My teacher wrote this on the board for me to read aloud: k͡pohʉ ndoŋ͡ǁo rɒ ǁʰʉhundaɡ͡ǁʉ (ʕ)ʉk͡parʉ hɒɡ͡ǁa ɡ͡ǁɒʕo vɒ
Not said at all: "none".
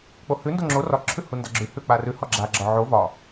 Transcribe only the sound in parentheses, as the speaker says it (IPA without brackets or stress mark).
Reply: h